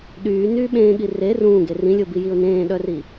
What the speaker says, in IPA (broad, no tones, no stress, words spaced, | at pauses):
ɗyːnyː ɓẽːɠi re rũːɡe rĩlʲobijiʊ̯ nẽːɗœri